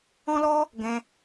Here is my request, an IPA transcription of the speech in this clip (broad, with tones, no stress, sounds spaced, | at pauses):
ɔ̃˦ l ɔ˦ | ɡ ɛ̃˧